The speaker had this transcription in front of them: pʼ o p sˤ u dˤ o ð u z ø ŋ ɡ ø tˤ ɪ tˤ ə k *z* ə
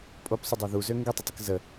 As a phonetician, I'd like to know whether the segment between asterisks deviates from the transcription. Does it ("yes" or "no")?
no